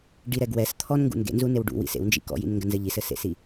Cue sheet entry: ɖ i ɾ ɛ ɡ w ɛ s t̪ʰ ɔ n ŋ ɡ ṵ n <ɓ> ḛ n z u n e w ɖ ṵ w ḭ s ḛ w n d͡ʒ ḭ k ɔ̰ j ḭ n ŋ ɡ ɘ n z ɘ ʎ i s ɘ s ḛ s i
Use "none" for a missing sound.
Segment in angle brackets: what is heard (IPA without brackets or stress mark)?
ɡ